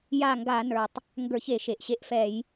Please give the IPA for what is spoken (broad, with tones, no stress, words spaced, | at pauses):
ja˦˨ŋɡa˧˩˧nə˞˩tˤ | ŋɡə˞˧˩˧çe˧˩˧ ʃe˩ʔɕe˦˨ʔfɛ˧˩˧j